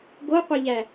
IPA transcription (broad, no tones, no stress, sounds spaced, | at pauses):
ɡ o qʷ e ʎ æ